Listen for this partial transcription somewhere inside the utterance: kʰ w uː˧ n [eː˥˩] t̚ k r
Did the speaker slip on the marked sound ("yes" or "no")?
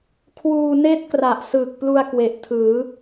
no